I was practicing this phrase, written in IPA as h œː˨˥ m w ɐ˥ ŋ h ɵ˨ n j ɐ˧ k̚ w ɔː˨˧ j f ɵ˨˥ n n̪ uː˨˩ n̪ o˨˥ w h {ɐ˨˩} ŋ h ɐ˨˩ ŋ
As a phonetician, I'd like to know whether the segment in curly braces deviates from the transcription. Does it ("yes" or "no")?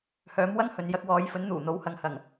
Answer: yes